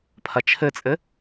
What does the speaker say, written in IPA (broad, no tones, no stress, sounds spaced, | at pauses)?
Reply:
pʰ ɐ t͡ʃʰ ɘ t͡sʼ ɘ